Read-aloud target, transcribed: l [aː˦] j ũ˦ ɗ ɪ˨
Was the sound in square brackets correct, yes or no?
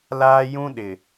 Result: yes